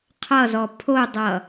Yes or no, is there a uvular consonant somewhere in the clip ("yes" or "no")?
yes